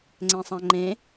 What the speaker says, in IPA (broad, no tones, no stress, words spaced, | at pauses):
ŋ͡ǀɛ̃sˤãŋ͡ǃẽ